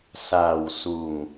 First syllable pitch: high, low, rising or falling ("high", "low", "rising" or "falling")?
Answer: low